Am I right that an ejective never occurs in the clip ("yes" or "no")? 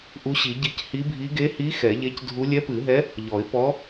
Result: yes